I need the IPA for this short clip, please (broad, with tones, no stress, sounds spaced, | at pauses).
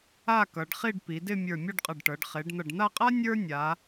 a˥˧ k ʌ˩˧ ɖ χ i˥˧ ɖ p i˩˧ d ɪ˥˧ mʲ ə˞˧˩ mʲ ʌ˥˧ ɖ qʼ ʌ˧˩ ɖ ʈ ɤ˩˧ ɖ χ e˩˧ ɖ n̪ ʌ˧˩ ɖ n̪ a˥˧ qʼ a˥ nʲ ə˞˥ nʲ a˩˧